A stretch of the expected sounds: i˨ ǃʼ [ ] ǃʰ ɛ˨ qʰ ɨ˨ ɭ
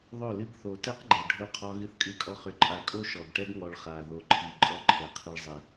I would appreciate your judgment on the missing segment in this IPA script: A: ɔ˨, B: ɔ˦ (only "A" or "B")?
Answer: B